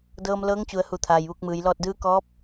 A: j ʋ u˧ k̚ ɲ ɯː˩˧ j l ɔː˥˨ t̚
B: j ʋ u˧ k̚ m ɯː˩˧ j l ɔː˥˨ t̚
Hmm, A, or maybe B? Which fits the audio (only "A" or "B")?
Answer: B